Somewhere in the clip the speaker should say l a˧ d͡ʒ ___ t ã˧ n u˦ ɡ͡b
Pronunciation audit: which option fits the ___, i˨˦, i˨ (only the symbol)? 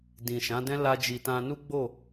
i˨